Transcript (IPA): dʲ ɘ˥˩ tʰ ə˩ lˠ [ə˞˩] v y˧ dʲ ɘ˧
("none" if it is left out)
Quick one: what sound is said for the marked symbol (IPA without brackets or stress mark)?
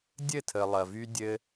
ɐ˩